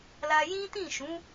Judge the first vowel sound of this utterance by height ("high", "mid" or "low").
low